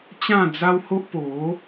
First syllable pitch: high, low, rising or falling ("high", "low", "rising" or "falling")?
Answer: falling